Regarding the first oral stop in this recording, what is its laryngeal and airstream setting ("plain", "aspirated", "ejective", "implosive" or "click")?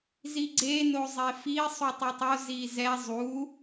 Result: click